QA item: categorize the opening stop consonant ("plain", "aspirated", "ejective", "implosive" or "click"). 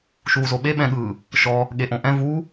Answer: implosive